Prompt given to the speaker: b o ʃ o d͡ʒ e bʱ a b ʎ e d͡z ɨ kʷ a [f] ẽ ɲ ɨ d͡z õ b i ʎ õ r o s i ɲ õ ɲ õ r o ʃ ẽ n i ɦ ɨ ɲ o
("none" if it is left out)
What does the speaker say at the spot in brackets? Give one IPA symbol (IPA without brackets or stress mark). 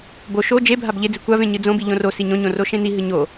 v